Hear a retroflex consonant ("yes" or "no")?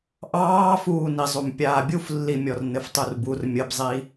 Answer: no